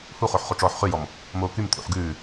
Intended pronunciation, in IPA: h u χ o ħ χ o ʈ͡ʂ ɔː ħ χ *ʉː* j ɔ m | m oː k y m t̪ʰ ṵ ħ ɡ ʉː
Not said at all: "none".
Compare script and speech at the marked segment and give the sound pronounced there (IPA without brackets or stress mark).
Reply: ʉ